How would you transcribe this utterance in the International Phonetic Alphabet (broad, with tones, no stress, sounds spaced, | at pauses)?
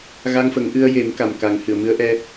ɣ a˧ ŋ f ə˨˩˦ ŋ ʔ ɨ˧ ə̯ j e˨˩˦ m k a˨˩ m k a˨˩˦ ŋ h ɨ˨˩˨ ə̯ m ɨ˧˥ ə̯ ʔ ɛ˧